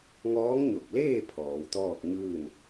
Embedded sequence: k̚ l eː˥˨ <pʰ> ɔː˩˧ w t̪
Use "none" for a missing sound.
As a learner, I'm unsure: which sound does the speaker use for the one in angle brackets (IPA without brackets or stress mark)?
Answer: pʰ